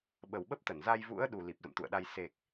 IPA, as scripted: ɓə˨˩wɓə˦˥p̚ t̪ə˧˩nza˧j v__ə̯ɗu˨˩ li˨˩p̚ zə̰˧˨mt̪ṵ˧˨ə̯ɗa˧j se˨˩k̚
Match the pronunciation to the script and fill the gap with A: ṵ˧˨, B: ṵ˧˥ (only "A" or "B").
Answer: B